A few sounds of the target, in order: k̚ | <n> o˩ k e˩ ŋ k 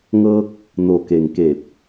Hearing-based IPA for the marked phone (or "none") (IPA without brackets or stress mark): n